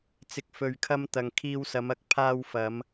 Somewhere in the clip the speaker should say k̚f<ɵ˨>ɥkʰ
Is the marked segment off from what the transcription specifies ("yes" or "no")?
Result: no